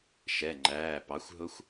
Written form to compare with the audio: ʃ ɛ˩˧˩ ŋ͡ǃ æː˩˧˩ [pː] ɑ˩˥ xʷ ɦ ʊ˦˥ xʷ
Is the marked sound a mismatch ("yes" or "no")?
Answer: yes